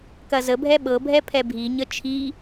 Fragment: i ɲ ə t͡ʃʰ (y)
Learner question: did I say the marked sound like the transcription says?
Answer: no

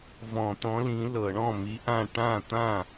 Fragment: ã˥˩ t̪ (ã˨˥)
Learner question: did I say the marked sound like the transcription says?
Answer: no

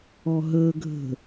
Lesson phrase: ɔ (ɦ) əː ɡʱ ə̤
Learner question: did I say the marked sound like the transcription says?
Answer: yes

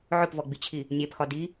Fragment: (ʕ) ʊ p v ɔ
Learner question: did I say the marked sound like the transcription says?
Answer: yes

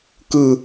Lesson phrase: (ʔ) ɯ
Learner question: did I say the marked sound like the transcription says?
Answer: no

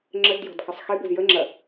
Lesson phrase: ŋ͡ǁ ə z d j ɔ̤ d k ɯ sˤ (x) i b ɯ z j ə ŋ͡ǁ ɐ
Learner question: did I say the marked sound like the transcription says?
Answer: yes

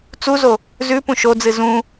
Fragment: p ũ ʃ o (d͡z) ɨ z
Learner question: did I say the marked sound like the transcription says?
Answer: yes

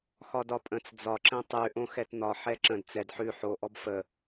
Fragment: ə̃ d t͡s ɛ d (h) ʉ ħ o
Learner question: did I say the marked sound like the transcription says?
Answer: no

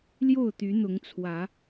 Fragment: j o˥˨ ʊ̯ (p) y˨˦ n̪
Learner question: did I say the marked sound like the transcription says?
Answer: no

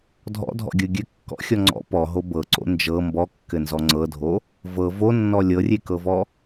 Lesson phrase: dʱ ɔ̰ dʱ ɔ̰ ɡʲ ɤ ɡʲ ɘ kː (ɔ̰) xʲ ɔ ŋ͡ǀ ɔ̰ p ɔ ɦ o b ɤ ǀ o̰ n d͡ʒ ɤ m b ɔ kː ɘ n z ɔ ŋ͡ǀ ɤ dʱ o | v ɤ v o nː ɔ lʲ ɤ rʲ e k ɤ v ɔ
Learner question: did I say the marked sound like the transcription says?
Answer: yes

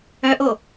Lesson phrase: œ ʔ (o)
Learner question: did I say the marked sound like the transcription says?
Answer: yes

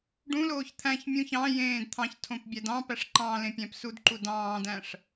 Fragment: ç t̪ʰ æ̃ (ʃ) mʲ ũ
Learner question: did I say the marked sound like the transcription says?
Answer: no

